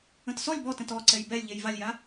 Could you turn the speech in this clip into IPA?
ə̃ t s ɔ lʲ b ɔ t ɛ̃ t ɔ ǀ ɛ j b ɛ lʲ ʎ e j v a lʲ j a

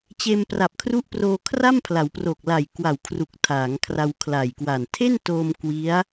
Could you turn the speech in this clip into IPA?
t͡ɕ eː˧ m p r a˨˩ p̚ kʰ r u˦˥ ʔ p r oː˧ kʰ r a˥˩ m pʰ l a˩˦ w p r o˨˩ k̚ l a˨˩ j k w a˨˩ w kʰ r u˨˩ k̚ tʰ aː˩˦ ŋ kʰ r a˧ w kʰ l a˨˩ j k w a˨˩ n tʰ e˥˩ n t oː˧ m k w i˦˥ a̯

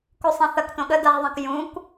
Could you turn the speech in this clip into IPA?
k u sˤ ẽ θ ɐ k t õ ɠ ə d ɐ ʁ ðˤ ẽ k j ũ k

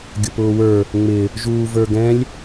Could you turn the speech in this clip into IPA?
ɡʲ ʊ p ʊː w ə˞ | ŋ͡m ɪ | ʒ uː v ə˞ ɡ ɛ̃ lʲ

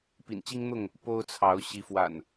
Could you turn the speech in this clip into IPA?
p ḭ˨˩ n t͡ɕ i˦ ŋ n̪ ʊ˥˨ ŋ | p o˦ ʊ̯ t͡sʰ ɑ˨˦ ʊ̯ ɕ i˨˦ f w a̰˨˩ n

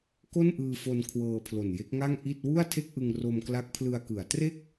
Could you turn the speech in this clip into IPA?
k o˥˩ n ʔ ɯː˧ f o˧ n kʰ w ɤː˧ pʰ l o˨˩ n j e˦˥ k̚ ŋ a˥˩ ŋ ʔ i˥˩ t̚ w u˥˩ a̯ tʰ e˥˩ k̚ ʔ ɯ˧ ŋ r o˧ m k l a˦˥ k̚ pʰ l ɯ˧ a̯ k ɯ˩˦ a̯ t r e˥˩ k̚

